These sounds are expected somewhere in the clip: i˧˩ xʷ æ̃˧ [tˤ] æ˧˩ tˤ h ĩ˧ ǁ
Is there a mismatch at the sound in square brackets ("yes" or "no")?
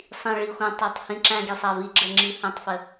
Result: no